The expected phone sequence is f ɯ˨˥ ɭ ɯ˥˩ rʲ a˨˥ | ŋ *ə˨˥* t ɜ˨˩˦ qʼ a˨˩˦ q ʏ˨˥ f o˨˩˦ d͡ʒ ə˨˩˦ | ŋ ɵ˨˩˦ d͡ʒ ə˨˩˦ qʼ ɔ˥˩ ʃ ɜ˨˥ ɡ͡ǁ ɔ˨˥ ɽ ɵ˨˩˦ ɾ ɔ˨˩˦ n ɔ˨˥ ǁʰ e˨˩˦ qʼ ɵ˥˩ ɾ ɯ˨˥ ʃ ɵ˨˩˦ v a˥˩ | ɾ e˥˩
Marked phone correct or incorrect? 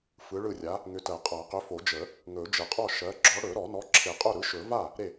incorrect